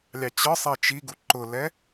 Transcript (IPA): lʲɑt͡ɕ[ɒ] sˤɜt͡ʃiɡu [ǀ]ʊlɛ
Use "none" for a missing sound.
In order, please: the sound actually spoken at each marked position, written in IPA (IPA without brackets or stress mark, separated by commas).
ɒ, ǃ